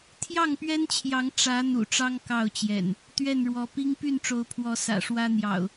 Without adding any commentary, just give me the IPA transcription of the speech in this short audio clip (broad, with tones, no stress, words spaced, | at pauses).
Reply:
t̪ʰjɑ˥˨ŋpɥɛ˦nt͡ɕʰjɑ˨˦ŋ ʈ͡ʂä˨˦ n̪ṵ˨˩ʈ͡ʂɑ˦ŋ kɑ˥˨ʊ̯t͡ɕjɛ̰˨˩n | t̪ɥɛ˥˨nɻwɔ˨˦ pi˦ŋ py˥˨nʈ͡ʂo˨˦ʊ̯pʰwɔ˨˦ sä̰˨˩ʂwä˦n̪jɑ̰˨˩ʊ̯